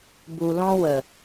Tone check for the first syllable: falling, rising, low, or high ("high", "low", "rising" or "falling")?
low